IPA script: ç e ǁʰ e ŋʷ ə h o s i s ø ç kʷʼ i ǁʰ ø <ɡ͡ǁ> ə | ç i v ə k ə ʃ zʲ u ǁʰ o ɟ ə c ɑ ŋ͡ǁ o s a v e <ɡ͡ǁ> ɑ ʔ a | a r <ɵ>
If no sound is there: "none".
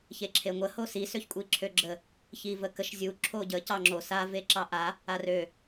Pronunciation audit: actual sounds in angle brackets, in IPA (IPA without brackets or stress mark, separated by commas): ɡ͡ǁ, ǁ, ø